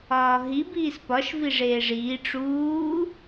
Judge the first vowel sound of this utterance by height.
low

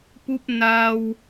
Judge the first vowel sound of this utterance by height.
high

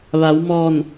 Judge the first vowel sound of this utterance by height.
low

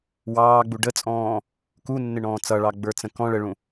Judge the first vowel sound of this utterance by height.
low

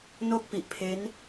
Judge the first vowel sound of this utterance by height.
mid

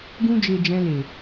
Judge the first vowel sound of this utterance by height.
high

